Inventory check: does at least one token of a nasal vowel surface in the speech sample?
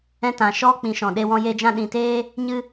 yes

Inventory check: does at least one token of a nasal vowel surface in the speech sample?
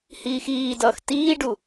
no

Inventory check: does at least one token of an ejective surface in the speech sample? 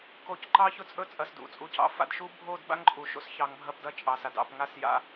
yes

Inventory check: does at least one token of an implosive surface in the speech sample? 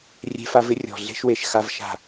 no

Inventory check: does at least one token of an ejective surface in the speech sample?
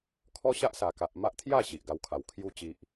no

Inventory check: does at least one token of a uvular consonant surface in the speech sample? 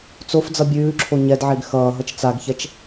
no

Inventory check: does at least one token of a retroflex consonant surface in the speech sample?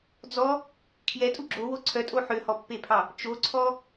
no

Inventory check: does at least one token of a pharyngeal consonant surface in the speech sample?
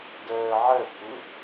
yes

